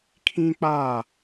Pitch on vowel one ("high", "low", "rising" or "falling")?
high